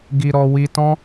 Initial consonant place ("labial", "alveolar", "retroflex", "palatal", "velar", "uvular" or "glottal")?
velar